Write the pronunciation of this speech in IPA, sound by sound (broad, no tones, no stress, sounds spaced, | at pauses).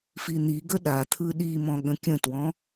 f i n̪ i ɡ ə ɗ a t̪ʰ ɯ ɗ i m ɔ̃ ɠ ə̃ kʲ ə̃ t w ɔ̃